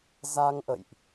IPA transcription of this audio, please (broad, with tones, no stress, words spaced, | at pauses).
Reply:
za˧ŋʔə̰˧˨jʔ